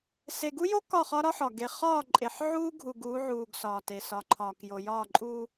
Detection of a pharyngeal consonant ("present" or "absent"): present